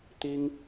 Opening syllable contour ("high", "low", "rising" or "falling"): high